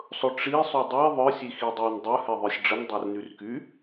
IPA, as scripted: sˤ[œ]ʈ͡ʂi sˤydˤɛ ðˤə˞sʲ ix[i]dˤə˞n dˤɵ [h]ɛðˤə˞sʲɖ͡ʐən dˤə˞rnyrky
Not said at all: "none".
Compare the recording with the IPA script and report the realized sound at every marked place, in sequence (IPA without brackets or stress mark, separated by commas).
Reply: ɵ, i, h